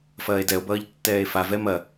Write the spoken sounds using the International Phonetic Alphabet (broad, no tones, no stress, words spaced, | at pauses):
fɐːe̯dɛo̯bʌːʎ tːɛːe̯favɛ mɐ